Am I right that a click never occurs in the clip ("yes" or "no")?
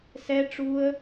yes